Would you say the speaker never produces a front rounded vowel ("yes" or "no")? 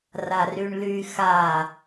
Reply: no